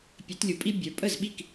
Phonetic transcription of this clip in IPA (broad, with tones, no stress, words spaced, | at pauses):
pʲɘ˨˩˦tlʲu˨pʼi˦ bʲə˞˨ pʼə˥˩zɓi˥˩k